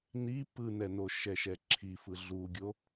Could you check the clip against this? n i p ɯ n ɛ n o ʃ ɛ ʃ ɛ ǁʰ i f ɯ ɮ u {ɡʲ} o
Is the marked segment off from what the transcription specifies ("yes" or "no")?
no